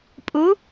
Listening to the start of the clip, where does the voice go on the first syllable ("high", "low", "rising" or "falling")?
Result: rising